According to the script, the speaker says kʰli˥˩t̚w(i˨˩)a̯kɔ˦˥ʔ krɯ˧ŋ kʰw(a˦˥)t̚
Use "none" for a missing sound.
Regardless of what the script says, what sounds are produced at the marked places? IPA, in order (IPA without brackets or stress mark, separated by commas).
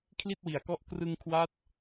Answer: i˨˩, a˦˥